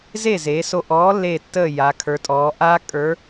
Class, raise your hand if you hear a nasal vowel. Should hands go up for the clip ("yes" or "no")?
no